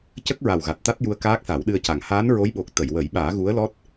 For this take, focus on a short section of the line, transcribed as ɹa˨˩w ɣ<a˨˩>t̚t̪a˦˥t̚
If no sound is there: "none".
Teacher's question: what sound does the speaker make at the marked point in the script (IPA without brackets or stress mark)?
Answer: a˨˩